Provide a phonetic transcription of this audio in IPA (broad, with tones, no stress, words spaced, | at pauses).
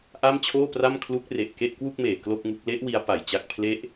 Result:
ʔa˥˩mt͡ɕʰoː˥˩pra˥˩m kʰlu˦˥k̚ re˨˩ʔke˥˩ʔkwu˥˩k̚meː˨˩ klo˥˩k̚ŋu˦˥k̚ le˦˥ʔ wi˦˥a̯pa˨˩jt͡ɕa˥˩k̚ pʰle˦˥ʔ